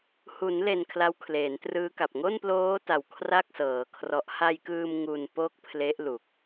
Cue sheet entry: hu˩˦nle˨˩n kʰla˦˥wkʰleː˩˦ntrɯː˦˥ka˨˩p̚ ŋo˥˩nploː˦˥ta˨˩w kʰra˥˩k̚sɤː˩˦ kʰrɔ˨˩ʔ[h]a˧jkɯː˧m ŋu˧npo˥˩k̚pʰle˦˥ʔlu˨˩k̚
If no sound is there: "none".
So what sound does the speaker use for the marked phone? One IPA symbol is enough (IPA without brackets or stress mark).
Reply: h